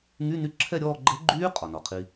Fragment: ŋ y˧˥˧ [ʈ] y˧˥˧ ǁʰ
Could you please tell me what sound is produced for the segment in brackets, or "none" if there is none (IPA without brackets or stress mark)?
n